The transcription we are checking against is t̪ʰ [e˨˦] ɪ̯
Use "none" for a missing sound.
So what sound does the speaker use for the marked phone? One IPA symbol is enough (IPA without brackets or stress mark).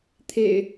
ḛ˨˩